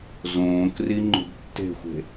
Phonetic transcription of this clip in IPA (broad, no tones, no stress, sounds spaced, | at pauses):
z õː k r i ŋ͡ǃ ṳ b tː e̤ xʷ e̤